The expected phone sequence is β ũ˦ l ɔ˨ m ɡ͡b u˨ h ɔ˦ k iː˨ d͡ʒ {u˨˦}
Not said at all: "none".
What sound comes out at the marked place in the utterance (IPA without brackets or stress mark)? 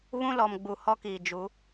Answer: u˨˦